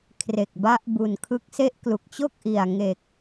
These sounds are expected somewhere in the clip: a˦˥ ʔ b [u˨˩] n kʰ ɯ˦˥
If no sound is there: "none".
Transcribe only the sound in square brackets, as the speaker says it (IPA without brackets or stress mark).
u˨˩